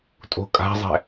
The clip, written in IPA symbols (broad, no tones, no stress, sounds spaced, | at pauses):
tʼ o̤ kʼ a̤ zˤ ɛ̤